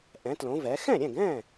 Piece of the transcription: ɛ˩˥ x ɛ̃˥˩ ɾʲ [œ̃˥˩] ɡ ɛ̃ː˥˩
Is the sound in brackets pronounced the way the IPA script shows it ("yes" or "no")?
no